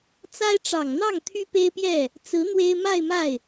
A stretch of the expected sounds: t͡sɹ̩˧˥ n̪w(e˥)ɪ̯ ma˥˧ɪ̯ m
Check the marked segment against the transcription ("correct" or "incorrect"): correct